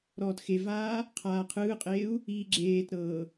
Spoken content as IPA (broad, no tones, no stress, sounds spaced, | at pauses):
ɾ ɔː t x e v aː | qʰ aː qʰ ɯː qʼ eː u̯ | iː ɡ͡ǁ eː t ɾ ɤː